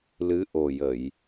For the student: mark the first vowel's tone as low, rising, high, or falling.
rising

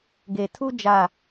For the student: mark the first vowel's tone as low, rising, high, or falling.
low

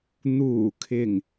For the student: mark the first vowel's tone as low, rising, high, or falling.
low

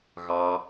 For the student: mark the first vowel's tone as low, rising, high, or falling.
low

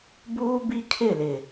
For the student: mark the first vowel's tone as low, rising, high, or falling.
high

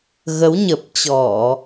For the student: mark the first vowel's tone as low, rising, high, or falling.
rising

